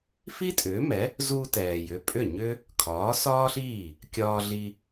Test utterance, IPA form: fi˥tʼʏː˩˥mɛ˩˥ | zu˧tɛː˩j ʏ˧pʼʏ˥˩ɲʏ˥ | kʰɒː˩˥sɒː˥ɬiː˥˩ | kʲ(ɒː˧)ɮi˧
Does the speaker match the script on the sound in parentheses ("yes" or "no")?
yes